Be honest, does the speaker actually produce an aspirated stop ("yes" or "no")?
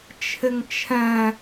yes